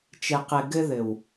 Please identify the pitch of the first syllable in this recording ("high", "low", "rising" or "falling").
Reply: low